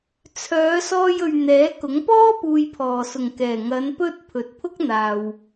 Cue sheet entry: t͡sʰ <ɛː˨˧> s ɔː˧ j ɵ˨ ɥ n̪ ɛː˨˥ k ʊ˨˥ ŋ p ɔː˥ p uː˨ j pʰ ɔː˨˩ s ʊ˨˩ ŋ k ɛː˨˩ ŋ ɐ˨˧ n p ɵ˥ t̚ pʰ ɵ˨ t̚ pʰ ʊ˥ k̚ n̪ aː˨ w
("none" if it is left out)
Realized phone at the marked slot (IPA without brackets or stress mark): œː˨˧